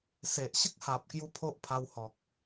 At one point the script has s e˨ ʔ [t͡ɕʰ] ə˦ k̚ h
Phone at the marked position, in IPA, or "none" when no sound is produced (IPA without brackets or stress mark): ɕ